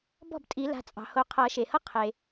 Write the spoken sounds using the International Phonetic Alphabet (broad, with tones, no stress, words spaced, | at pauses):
bɔ̤˥˩btʼi˨˩˦ la̤˩˧˩t͡sʼɑ̤˩ho˨˩˦ qʰʌ˨˩˦ ʃe˩hʌ˥ qʰe˩